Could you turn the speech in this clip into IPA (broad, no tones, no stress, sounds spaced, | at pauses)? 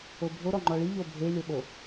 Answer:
o bʱ o ɾ ɔ ŋ͡ǃ ɔ ɭ i ʎ o bʱ e lʲ o ɓ o